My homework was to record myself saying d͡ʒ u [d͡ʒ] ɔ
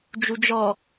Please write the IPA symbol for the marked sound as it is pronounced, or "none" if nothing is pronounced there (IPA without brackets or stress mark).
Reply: d͡ʒ